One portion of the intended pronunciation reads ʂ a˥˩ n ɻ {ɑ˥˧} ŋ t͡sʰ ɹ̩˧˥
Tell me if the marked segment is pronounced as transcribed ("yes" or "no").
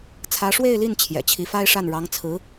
no